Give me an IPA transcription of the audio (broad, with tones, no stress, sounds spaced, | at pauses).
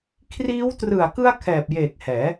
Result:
kʰ r iː˦˥ w t r ɯ˨˩ a̯ k ɯ˧ a̯ kʰ ɛː˨˩ p̚ j eː˨˩ k̚ h ɛː˩˦